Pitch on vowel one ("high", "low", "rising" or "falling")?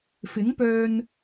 rising